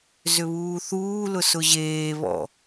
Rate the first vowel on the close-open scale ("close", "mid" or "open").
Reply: close